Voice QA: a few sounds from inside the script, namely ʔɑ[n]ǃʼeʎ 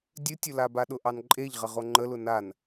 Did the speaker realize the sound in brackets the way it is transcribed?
yes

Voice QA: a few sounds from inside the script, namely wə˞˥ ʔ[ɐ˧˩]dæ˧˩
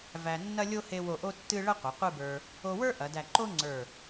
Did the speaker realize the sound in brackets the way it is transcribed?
no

